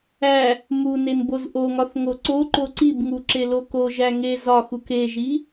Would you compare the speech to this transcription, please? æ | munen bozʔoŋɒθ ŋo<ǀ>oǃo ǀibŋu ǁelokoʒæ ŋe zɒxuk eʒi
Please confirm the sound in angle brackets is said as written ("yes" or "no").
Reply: yes